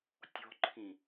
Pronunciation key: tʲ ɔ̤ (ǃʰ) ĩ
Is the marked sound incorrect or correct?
correct